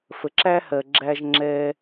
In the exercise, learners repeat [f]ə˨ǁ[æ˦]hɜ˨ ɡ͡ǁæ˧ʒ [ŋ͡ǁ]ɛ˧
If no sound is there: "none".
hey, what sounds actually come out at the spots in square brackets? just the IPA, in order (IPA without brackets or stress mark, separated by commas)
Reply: f, æ˦, ŋ͡ǁ